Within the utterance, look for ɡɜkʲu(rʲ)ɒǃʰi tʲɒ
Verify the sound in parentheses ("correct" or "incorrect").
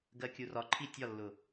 incorrect